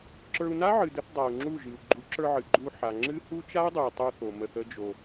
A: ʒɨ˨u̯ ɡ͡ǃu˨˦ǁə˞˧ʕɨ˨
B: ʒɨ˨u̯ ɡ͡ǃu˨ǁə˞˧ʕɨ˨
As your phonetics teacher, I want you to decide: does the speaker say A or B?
A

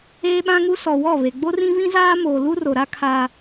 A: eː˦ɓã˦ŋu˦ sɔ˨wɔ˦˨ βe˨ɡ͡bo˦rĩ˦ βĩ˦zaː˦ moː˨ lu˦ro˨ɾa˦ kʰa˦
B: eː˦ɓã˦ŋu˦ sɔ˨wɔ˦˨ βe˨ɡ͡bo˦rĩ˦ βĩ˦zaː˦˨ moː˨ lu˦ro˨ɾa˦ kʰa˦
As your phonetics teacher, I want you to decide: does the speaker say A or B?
A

